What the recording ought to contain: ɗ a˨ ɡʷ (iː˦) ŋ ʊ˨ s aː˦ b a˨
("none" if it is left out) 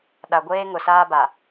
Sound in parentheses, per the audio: eː˦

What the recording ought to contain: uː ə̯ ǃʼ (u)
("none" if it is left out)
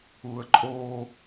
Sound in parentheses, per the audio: o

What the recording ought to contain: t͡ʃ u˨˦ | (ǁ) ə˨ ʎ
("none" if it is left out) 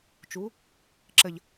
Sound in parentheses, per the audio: ǁ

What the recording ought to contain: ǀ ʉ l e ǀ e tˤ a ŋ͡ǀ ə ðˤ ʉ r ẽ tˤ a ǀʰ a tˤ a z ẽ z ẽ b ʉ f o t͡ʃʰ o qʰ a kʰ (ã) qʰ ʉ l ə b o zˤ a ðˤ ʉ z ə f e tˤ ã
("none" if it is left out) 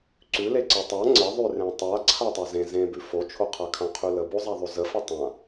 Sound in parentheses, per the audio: ã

